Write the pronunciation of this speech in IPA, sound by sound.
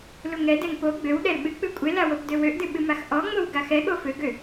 l u ŋ ɛ d ɛ ŋ p o ɡ͡b ø w ɗ ɛ l ɓ ɨ k͡p ɨ kʷʼ e l a w o p d ø w ø ʔ d ɨ ɓ ɨ m a x ʔ ɔ ŋ͡m o w ɡ a x ɛ ɠ o f ø ɡ ø

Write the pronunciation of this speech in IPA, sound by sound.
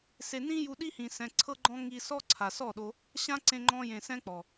s e˨ n ĩ˧ j u˧ ɗ i˦ h ĩ˨ s ɛ̃˨ ǀʰ ɤ˦ ɡ͡ǃ ɔ̃˦ ŋ i˧ s ɔ˦ ǀʰ a˨ s ɔ˦˨ ɗ o˧ | ɕ ã˦ ǀ ẽ˧ ŋ͡ǃ ɔ̃˧ j ẽ˨ s ɛ̃˦ k͡p ɔ˨

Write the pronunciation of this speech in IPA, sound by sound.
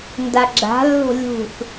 n d a ɡ͡ǁ a̤ lː o̤ lʲ ṳ θ

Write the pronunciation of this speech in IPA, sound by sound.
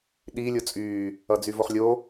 ɗ i lʲ o t͡sʼ yː | ʌ d͡z y v o χ lʲ o

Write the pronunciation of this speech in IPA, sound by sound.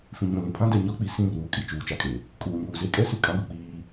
f ĩ˨ ɲ ũ˨ l ĩ˨ pʰ ã˦ d ɛ˨ ɲ ɔ˦ k͡p i˨ s ĩ˦˨ r uː˨ kʼ i˨ t͡ʃ uː˨ t͡ʃ a˦ kʼ e˨ | kʼ uː˨ ɲ uː˨ z e˦ kʼ ɛ˦ s ɪ˨ kʼ ã˦ ɡ ʊ˨ k͡p iː˦

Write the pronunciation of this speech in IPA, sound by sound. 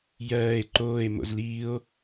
j ɜː e̯ ǃ oː e̯ m o̰ z l iː o̯

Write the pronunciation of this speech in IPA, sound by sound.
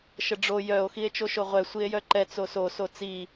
ʃ ə ɖ͡ʐ o j œ o̯ x i e̯ t͡ʃ o ʃ o ʁʷ ɛ sʷ i e̯ j œ ǃ ɛ t͡s o s o s o t͡s i

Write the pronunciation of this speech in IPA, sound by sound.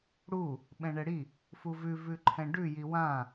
ɽ u | ɓ ɛ̃ ɳ ɛ ɽ i | f u v ʉ v ʉ ǃʰ ɛ̃ ɖ ʉ j i w ã

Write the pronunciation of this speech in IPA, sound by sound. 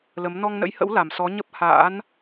l ə˨˦ m n ɔ˧ ŋ n ə̰˧˥ j h ə̰˧˥ w l a˨˩ m s ɔ˨˦ ɲ ə˦˥ p̚ h a̰ː˧˥ n

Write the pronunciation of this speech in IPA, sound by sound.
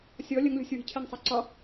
sʲ ɔ lʲ ə ŋ lʲ ɔ̤ sʲ w i̤ cʰ ɛ ŋ sˤ a ǀ ɒ

